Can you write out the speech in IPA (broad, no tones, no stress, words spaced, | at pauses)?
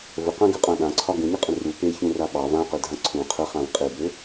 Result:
vəqãɡøqʼã ɗãǀʰɒ ɡũɲəqʼə̃ ru peçũra ɓɑ vãqødʱã ǀʰũ qʰəχãv qʼebø